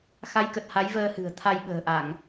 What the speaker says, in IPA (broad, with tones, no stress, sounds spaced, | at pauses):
x a˨˦ j k ə˨˩ t̚ h a˨˦ j v əː˧ h ɨ̤˨˩ ə̯ t̪ʰ a˧ j ɓ ə̤ː˨˩ ʔ a˧˩˨ ŋ